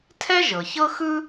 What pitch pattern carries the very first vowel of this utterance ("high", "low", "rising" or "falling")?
high